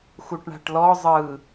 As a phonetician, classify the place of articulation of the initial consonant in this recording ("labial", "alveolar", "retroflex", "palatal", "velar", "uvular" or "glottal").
velar